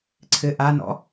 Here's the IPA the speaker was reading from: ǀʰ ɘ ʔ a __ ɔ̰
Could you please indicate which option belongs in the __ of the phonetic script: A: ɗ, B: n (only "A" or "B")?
B